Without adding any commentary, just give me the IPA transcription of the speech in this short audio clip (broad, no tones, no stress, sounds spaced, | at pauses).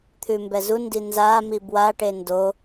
t̪ʰ ʉ m b ɛ z u n d i n z a m i b w a ʈ e n d o